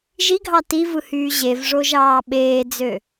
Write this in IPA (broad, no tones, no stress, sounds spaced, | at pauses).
ʒ i ɡʱ ɑ t i v ɯ h yː ʑ e v ʐ o ʒ ɑː ɓ eː d͡z ø